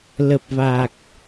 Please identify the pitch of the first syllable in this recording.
low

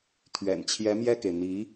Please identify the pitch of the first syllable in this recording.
low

